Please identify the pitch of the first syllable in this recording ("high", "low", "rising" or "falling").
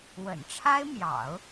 low